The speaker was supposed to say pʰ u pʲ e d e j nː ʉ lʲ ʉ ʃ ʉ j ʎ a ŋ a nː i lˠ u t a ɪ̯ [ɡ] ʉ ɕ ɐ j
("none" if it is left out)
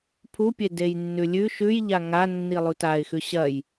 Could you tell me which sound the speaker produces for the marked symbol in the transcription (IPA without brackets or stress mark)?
x